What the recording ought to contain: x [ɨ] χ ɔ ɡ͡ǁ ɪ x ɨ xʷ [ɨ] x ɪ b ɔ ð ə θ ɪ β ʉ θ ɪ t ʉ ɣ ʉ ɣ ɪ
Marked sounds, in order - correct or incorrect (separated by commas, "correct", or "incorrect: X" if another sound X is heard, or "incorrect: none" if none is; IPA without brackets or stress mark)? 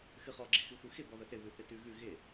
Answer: correct, correct